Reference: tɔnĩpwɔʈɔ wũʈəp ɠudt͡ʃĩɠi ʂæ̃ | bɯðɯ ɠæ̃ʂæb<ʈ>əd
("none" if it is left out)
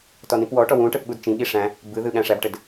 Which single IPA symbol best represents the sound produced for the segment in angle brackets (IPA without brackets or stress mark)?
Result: ʈ